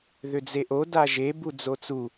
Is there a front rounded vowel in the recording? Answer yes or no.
yes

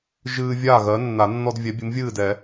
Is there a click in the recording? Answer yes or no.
no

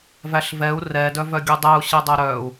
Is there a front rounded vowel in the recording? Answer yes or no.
yes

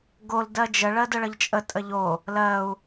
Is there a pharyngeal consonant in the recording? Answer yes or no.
no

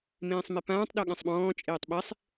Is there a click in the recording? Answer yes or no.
no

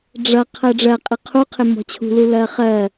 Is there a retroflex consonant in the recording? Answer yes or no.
yes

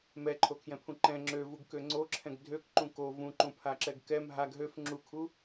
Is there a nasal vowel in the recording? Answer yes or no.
yes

